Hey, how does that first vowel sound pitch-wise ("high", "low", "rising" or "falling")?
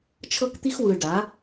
high